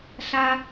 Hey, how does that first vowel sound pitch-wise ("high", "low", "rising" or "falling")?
high